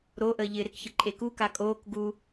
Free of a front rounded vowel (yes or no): yes